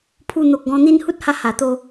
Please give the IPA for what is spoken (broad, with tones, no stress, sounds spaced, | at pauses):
pʰ u˧ n̪ o˨ k̚ ɡ ɔ̃˧ n̪ i˧ n h u˦ t̚ h a˧ h a˨˩ t̪ o˧